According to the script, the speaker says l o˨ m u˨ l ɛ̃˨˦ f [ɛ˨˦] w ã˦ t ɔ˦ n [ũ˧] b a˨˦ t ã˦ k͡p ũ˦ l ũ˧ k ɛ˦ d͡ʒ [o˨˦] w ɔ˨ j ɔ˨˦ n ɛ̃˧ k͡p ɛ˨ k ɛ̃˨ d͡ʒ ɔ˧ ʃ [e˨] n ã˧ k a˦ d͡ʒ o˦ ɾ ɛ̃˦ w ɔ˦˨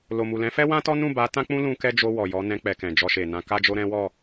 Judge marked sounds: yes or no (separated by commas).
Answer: no, no, no, yes